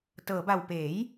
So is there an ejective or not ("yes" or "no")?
no